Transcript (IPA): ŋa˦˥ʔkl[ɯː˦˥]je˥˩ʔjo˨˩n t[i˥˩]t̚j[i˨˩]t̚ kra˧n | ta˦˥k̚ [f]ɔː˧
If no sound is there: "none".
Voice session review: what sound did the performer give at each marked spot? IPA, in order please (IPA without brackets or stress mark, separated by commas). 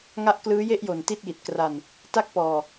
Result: ɯː˦˥, i˥˩, i˨˩, p